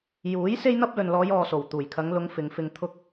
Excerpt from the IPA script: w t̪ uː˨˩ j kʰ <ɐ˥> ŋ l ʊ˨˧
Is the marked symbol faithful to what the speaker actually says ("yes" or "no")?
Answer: no